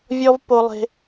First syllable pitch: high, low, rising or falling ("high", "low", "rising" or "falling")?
high